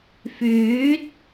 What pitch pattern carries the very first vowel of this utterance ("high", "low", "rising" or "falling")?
rising